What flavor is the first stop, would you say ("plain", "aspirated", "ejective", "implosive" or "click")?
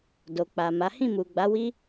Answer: plain